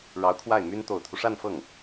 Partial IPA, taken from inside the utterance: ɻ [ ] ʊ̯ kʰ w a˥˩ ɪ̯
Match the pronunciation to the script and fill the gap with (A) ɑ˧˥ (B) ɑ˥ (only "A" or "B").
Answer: A